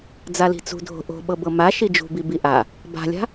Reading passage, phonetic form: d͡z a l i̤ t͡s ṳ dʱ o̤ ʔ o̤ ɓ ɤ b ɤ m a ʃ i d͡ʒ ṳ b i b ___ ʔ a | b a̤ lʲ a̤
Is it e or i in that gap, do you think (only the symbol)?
i